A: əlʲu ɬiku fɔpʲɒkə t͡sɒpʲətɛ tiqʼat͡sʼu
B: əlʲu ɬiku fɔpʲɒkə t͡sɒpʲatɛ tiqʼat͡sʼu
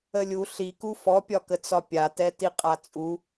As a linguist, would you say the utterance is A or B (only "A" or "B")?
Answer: B